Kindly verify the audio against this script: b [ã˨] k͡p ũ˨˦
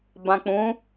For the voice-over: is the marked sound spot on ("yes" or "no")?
yes